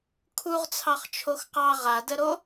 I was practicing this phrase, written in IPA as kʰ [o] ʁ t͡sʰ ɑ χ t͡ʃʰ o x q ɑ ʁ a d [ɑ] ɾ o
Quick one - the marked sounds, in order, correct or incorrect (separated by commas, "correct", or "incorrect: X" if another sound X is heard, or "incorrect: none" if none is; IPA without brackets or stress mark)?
incorrect: u, incorrect: ə